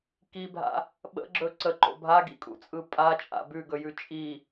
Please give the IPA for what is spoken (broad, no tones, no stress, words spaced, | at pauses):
kibʱa̰ | ɓə̰ɡ͡ǁɵ ǀəǃo̰ bʱaɡḭkʼṵt͡sʼɯ pʼat͡ʃʼa̰ bʉɡɵjʉ t͡ʃʼi